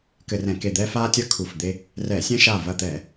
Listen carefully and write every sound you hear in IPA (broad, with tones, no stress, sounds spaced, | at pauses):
k ɘ˧˩˧ r ɛ̃˧˩˧ k e˧˩ d̪ ɛː˦ f aː˦ tʲ ɐ˦ kʰ u˧˩ f d̪ e˦ | r ɛ˧˩˧ sʲ ɛ̃˦ ʃ aː˧˩ v ɐ˧˩ t̪ ɛː˧˩˧